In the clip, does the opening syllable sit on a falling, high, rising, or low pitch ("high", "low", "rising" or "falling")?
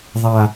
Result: low